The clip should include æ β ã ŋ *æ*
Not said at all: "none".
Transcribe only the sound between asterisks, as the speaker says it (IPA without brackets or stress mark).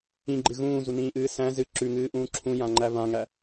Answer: æ